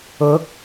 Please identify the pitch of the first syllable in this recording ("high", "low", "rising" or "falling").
rising